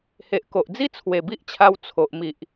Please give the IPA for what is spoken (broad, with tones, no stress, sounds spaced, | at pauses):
h e˨ ʔ k o˨ ʔ d͡z i˦ t͡sʰ w e˨˩ b i˦ ʔ t͡ɕʰ a˧ w t͡sʰ o˨ ʔ m i˨ ʔ